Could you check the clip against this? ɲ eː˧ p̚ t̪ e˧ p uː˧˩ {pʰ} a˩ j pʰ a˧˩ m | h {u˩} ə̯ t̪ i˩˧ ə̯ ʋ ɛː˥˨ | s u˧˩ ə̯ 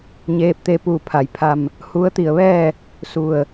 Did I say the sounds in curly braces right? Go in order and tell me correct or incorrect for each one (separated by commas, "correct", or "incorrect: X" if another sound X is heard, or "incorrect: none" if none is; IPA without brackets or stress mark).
correct, incorrect: u˧˥